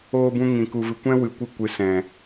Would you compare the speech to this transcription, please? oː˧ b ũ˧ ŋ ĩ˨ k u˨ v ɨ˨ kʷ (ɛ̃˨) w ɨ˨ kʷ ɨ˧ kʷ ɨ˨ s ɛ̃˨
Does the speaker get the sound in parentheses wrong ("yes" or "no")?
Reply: yes